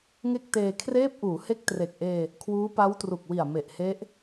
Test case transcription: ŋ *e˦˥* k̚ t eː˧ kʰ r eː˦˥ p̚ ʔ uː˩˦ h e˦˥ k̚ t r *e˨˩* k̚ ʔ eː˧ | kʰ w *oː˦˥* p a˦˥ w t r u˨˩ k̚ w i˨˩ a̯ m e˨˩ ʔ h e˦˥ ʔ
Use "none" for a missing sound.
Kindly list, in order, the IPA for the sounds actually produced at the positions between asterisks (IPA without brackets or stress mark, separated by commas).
e˥˩, e˨˩, uː˦˥